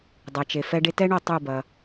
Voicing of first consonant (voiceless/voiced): voiced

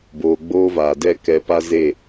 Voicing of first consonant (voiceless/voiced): voiced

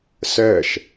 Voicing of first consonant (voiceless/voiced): voiceless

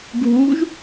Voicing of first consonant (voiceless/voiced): voiced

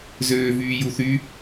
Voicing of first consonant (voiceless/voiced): voiced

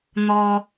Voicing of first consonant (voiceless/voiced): voiced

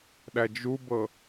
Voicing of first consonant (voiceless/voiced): voiced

